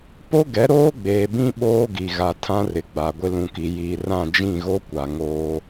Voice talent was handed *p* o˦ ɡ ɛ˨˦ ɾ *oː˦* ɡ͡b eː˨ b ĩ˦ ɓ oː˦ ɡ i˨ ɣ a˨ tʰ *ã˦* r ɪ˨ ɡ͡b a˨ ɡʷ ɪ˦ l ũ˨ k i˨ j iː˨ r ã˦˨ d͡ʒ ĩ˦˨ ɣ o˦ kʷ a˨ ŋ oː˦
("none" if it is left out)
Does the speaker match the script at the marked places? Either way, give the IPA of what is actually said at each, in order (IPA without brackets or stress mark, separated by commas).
p, oː˦, ã˦